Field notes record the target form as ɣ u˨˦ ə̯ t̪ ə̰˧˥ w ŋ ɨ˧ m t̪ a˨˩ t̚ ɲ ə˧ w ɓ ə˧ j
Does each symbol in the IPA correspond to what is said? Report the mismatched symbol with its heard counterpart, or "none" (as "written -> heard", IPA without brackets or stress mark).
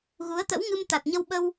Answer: j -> w